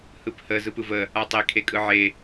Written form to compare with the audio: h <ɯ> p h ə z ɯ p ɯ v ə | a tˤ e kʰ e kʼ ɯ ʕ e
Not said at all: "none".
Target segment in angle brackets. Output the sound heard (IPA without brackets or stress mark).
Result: ɯ